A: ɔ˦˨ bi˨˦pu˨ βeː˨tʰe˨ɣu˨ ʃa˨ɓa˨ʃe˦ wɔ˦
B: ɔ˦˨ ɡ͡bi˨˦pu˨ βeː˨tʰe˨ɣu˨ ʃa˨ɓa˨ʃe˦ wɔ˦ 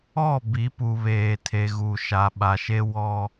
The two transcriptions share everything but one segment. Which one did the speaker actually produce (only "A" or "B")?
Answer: A